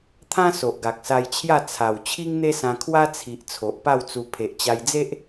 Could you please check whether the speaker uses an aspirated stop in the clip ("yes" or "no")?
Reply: yes